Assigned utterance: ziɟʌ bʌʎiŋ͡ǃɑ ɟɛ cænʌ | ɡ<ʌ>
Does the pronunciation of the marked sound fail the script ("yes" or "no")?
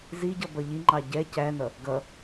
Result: no